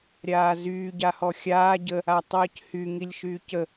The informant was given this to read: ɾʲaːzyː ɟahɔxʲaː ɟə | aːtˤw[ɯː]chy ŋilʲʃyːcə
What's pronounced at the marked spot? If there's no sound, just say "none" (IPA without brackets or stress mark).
əː